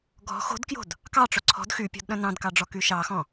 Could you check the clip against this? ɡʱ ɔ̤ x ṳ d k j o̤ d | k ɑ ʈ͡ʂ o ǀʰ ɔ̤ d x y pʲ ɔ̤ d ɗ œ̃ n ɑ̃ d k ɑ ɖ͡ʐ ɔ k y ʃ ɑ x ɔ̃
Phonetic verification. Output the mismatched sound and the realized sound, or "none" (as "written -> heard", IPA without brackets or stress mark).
ṳ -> o̤